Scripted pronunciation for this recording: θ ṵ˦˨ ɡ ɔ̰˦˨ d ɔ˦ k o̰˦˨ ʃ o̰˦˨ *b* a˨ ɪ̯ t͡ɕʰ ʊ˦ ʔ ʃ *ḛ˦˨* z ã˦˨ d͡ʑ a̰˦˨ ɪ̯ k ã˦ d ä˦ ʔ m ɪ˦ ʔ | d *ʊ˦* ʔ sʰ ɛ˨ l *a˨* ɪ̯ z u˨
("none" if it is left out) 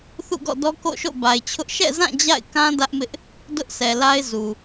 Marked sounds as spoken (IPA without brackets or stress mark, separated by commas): b, ɛ̰˦˨, ʊ˦, a˦